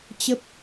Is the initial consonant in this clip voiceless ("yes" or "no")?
yes